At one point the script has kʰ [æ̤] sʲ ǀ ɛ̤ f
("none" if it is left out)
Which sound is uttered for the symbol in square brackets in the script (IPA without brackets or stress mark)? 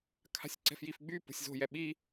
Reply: a̤